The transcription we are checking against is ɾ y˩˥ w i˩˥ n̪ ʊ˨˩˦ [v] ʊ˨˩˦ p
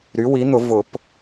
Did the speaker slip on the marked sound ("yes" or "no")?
no